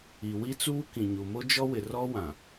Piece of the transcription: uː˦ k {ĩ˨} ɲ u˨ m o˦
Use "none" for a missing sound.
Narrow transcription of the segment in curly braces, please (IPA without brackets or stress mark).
ĩ˨